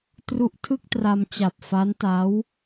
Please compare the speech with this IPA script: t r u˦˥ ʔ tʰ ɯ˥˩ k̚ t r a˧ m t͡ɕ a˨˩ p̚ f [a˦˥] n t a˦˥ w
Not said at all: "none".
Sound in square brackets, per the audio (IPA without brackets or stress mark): a˦˥